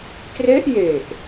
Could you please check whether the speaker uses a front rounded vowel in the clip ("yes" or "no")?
no